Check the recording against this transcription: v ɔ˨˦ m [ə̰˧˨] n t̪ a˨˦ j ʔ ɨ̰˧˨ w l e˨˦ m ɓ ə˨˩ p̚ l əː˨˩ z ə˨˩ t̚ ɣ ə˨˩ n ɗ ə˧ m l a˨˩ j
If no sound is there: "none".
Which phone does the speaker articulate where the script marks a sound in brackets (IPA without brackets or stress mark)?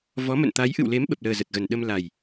ə̰˧˨